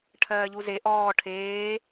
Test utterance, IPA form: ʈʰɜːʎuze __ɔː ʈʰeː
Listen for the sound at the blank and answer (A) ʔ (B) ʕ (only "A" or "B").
A